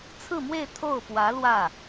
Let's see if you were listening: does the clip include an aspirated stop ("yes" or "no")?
yes